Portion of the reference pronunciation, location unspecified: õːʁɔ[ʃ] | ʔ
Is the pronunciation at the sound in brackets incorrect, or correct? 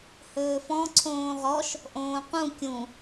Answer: correct